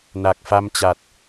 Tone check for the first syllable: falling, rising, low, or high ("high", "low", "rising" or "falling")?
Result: low